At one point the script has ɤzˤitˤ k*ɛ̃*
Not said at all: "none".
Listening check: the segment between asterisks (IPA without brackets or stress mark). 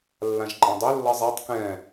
ɛ̃